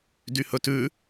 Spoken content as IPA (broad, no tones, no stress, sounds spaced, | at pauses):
d y h ɵ t ʉ